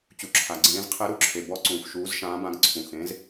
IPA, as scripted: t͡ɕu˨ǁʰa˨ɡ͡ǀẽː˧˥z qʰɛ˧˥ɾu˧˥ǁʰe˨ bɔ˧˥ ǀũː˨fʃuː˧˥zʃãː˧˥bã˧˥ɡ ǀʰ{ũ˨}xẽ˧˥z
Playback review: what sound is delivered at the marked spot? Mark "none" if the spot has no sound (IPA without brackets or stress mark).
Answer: ũ˨